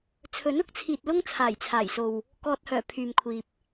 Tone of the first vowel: rising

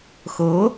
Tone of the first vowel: rising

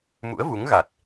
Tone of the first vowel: rising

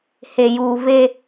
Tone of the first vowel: low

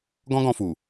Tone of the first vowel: high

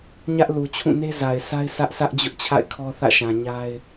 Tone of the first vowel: high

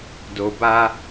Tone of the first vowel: low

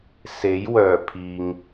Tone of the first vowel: rising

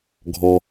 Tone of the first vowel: low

